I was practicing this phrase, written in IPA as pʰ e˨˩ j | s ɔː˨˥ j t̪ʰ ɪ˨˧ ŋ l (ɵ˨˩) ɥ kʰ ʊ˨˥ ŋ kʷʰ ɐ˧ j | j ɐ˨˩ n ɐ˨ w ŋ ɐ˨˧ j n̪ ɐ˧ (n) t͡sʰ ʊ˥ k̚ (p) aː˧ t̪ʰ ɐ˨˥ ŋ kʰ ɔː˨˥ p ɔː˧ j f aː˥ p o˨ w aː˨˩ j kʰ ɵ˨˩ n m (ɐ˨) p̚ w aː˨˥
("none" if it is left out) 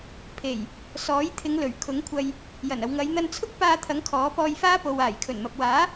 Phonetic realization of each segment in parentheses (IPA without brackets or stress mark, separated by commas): ɵ˨˩, n, p, ɐ˨